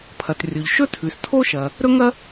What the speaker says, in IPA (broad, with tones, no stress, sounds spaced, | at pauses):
pʰ ɐ˩ t rʲ o˩ ʎ ʃ ɵ˥ tʰ ʉ˩ s tʰ o˥ ʃ ɐ˩ | ɾ ɵ˥ ŋ ɐ˥